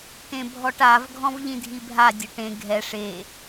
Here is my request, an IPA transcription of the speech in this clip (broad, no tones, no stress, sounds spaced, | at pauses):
t ẽ bʱ ɔ ʈ a v ɡʱ ɔ̃ v ʎ ĩ dʱ i bʱ a dʲ ʊ ʈ ẽ ɡʱ ɛ ʂ e